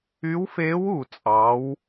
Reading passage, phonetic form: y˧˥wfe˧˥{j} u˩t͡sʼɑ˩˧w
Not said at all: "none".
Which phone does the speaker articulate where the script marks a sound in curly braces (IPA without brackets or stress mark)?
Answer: w